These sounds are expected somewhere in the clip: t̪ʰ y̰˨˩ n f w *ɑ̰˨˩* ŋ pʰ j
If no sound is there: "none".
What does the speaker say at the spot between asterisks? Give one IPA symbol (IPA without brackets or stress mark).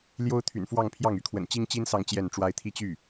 ɑ˥˧